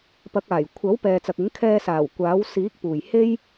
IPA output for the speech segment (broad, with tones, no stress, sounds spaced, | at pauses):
p ɐ˨˥ k̚ aː˨˩ j kʷʰ ɐ˨˥ w p ɛː˨ t͡s ɐ˨ k̚ ɪ˨˥ ŋ kʰ ɛː˧ s aː˨˩ w kʷ aː˨˥ w s iː˨˥ k̚ p uː˨˩ j h e˥ j